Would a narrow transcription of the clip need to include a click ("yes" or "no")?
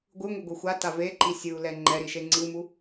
yes